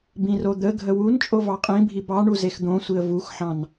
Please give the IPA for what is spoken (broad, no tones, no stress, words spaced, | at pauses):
bĩrod̪ə ɡʱəwun t͡ʃʼovɑqʼĩ bʱibɑɳu zexd̪õsʷiə̯ vuxħɑ̃n